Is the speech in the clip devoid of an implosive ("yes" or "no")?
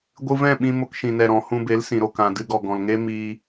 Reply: no